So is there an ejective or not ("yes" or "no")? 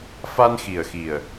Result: no